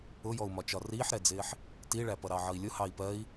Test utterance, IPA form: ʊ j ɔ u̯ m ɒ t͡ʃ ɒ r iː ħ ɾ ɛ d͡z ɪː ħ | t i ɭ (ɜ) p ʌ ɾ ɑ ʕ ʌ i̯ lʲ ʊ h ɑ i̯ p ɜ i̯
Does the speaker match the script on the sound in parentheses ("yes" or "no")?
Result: no